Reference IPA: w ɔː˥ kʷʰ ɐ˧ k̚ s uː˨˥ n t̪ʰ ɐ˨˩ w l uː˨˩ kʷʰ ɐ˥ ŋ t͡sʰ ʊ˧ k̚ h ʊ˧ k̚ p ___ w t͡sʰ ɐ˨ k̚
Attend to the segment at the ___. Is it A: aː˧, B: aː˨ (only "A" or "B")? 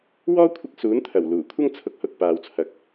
B